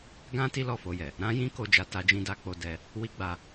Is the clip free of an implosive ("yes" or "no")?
yes